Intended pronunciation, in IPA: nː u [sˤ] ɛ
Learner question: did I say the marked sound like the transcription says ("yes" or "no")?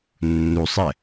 yes